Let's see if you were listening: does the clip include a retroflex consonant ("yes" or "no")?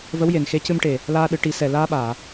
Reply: yes